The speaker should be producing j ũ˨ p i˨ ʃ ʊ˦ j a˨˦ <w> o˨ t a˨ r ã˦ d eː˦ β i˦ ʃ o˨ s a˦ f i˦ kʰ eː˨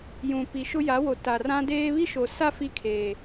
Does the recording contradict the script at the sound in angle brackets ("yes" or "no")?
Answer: no